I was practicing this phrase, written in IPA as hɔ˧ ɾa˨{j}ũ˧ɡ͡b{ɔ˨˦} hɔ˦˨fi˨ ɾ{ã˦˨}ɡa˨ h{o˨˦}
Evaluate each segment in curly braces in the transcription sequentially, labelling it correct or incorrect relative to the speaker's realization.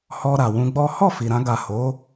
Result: incorrect: w, incorrect: ɔ˦, incorrect: ã˧, correct

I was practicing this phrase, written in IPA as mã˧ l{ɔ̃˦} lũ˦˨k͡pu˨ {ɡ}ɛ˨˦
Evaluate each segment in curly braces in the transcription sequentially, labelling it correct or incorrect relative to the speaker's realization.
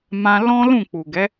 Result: correct, correct

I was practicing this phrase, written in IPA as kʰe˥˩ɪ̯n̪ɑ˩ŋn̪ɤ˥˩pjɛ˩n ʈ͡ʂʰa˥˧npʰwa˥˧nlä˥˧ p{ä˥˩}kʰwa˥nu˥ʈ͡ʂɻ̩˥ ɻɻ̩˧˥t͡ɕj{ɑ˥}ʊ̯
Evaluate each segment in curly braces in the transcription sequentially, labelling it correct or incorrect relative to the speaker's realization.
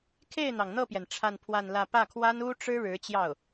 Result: correct, incorrect: ɑ˥˩

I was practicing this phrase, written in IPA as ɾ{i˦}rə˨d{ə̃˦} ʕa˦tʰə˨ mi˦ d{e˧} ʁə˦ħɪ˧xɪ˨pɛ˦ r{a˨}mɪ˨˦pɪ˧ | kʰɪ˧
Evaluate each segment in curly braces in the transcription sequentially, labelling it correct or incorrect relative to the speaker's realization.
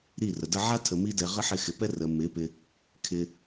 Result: incorrect: i˦˨, incorrect: ə˦, incorrect: ɛ˧, incorrect: ə˨

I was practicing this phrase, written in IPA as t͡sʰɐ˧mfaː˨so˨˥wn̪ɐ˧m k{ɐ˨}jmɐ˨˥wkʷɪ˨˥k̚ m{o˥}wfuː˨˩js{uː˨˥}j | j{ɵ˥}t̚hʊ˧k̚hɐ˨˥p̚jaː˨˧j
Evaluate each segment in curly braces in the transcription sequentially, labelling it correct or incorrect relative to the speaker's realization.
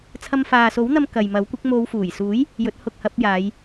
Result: correct, incorrect: o˨˧, correct, incorrect: ɵ˨˥

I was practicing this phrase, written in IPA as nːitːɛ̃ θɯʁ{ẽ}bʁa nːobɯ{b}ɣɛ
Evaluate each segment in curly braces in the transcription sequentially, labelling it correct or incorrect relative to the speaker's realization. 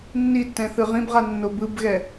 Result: incorrect: ĩ, correct

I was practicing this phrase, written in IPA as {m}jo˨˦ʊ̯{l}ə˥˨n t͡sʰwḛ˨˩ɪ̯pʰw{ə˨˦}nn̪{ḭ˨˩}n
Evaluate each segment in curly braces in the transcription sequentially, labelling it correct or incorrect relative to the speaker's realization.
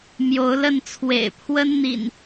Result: correct, correct, incorrect: ə˦, correct

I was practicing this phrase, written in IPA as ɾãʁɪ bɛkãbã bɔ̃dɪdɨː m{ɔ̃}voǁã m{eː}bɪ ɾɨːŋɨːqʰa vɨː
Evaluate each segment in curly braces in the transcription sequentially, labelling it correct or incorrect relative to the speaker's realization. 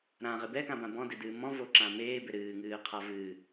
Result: correct, correct

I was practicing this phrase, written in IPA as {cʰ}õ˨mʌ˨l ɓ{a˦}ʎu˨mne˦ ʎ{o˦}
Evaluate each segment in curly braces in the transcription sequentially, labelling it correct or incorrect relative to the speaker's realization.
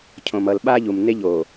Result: correct, correct, incorrect: o˨

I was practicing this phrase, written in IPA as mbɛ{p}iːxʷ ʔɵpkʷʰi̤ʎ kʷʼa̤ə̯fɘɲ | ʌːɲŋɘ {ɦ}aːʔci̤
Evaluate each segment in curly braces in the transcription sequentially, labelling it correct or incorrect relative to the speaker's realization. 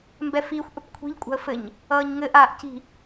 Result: incorrect: f, incorrect: ʔ

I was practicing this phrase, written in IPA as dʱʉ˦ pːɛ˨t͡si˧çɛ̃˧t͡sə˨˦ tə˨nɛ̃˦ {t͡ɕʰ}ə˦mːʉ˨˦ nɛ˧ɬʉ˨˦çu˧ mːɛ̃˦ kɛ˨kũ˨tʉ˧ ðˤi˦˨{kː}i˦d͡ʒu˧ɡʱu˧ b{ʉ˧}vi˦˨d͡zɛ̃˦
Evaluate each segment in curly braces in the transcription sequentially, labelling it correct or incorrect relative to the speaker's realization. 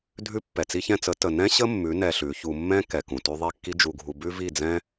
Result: incorrect: ɕ, correct, incorrect: ʉ˦

